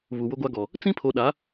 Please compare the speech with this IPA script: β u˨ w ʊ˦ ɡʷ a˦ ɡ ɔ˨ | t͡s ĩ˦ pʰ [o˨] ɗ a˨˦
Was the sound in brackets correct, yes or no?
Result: yes